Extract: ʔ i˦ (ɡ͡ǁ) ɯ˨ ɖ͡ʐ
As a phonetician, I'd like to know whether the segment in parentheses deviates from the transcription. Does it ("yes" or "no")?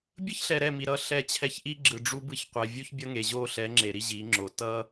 no